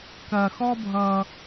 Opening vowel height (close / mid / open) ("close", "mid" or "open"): open